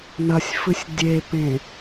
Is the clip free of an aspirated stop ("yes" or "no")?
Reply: yes